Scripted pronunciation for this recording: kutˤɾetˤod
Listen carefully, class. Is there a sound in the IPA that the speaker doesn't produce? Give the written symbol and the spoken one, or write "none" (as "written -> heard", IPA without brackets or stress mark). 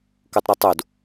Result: none